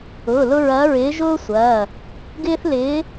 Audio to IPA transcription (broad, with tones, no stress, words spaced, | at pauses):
ʊː˩˧˩lʊ˦ɹɐː˨˦ ɹɪː˨˦ʒʊː˦ sʷɐː˩˧˩ | ɡɪː˦θ lɪː˨˦